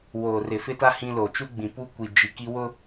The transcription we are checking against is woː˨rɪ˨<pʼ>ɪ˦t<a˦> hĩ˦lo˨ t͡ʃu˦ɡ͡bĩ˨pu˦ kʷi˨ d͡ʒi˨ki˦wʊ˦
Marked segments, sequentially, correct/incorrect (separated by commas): incorrect, correct